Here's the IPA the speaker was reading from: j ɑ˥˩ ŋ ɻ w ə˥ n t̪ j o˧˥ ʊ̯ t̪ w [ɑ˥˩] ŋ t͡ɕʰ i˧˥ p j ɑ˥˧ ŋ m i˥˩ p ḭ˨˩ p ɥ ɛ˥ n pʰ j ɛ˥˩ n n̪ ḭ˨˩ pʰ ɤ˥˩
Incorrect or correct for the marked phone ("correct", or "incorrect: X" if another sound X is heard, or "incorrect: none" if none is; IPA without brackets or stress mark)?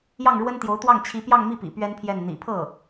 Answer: correct